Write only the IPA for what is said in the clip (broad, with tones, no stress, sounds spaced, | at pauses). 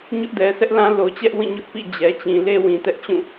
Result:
ɲ ʊ˦ ʔ d ɛ˨ sʰ ɛ˦ ʔ l ã˦ l o˨ t͡ɕ ɛ˦ ʔ w ĩ˦˨ ɲ ʊ˦ ʔ p ḭ˦˨ d͡ʑ ɛ˨ t͡ɕ ĩ˨ l e˦ w ĩ˨ t ɛ˦ ʔ t͡ɕ ũ˦˨